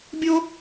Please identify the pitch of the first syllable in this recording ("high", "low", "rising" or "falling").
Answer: high